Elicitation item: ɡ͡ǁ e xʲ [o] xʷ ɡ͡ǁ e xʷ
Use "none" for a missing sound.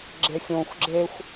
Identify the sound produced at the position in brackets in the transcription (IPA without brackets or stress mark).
õ